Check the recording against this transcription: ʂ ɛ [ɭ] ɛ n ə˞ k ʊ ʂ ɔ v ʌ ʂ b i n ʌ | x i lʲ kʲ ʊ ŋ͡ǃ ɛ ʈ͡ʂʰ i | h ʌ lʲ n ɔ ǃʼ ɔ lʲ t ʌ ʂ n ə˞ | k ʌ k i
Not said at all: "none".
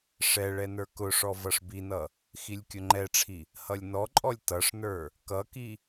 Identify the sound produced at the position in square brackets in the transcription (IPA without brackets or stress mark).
ɭ